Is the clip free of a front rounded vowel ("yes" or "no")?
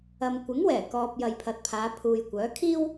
no